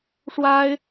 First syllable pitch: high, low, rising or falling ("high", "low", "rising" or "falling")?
high